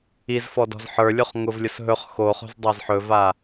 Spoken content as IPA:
i z f ɔ d ɔ̤ z ħ ə˞ lʲ o χ ŋ ʊ v lʲ ʊ s ɦ ɵ χ x o χ o̤ z dˤ a z ħ ɵ v a

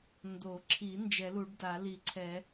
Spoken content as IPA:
n d o˨˩˦ ǁʰ i˨˩˦ n d͡ʒ ɛ˨˩˦ l u˨˩˦ ɖ d a˨˩˦ l i˨˩˦ ǀʰ ɛ˨˩˦

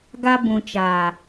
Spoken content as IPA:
ɡ a˧ b ũ˨ t͡ʃ aː˨

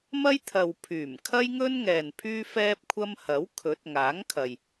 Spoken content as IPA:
m ɐ˥ j t̪ʰ ɐ˨ w pʰ yː˨˩ m kʰ ɐ˥ j ŋ ɵ˥ n ŋ ɛː˨ n pʰ yː˥ f ɛː˥ p̚ kʷʰ ɐ˥ m h ɐ˨˥ w kʰ ɵ˨˥ t̚ ŋ aː˨˥ ŋ kʰ ɐ˨ j

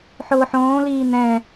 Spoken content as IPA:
ħ ʊː ħ õː l iː n̪ ɛ̃

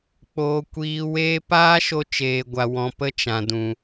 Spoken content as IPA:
k͡p oː˦ kʷ iː˦ w eː˦ p aː˦ ʃ o˧ t͡ʃ eː˨ ɡʷ a˨ w ɔ̃˨ p ə˦˨ t͡ʃ ã˨ d ũ˨

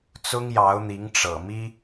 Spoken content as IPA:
t͡s ʊ˥ ŋ j ɑ˧˥ ʊ̯ n̪ i˧˥ ŋ ʈ͡ʂ ɤ̰˨˩ m i˥

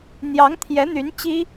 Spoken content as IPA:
n̪ j ɑ˧˥ ŋ t̪ʰ j ɛ˧˥ n̪ y˧˥ n t͡ɕ i˥

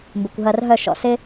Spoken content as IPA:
m b ɪ˨ kʷ ɦ ɐ˧ r ɦ œ˦˨ ʃ ɔ̰˨ s ɪ˦

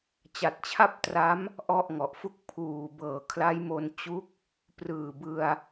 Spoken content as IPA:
t͡ɕ a˨˩ t̚ t͡ɕʰ a˥˩ p̚ t r a˦˥ m | ʔ ɔ˥˩ ʔ ŋ ɔ˨˩ ʔ f u˥˩ k̚ pʰ uː˨˩ b ɤː˨˩ kʰ l a˦˥ j m o˧ n t͡ɕ u˦˥ k̚ | p r ɯː˨˩ b ɯ˧ a̯

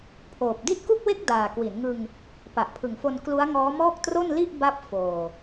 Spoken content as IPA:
pʰ oː˨˩ p̚ d i˥˩ t̚ k u˥˩ k̚ w e˥˩ k̚ d aː˨˩ k w i˩˦ n ŋ ɯ˧ ŋ | p a˨˩ ʔ pʰ ɯ˨˩ ŋ f o˧ n k l u˦˥ a̯ ŋ ɔː˦˥ m ɔː˥˩ k̚ t r o˥˩ n l i˥˩ ʔ b a˦˥ p̚ f oː˨˩

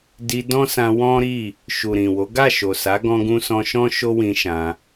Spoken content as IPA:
d i˧ d ɔ̃˦ s ã˧ w ɔ̃˦ ɾ i˦˨ | ʃ u˨ ɾ ĩ˨ w o˨˦ ɡ a˦˨ ʃ o˨ s a˨˦ ɡ ɔ̃˦ ɡ ũ˦ s ɔ̃˦ ʃ ɔ̃˦ ʃ o˦ w ĩ˧ ʃ ã˧

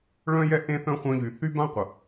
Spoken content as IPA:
ɭ œ̃˦ j ɛ˦ ʔ ẽ˦ θ œ̃˦ χʷ œ̃˧ ʎ y˨ θ y˦ b ã˦ qʷ ə˨

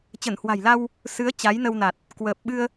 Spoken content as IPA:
t͡ɕ ə˧˩ n h w a̤˨˩ j l a˧ w | s ɨ˨˦ ə̯ t͡ɕ a˨˦ j n ə˧ w n a˨˩ t̚ | k w əː˨˩ p̚ ɓ ɨ˧ ə̯

